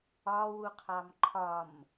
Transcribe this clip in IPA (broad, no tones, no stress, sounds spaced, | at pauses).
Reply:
ɒ w u qʰ ɑ m ǃʰ ɒ m